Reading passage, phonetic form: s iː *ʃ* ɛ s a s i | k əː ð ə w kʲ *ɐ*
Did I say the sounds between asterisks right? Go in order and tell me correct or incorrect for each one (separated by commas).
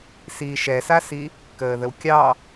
correct, incorrect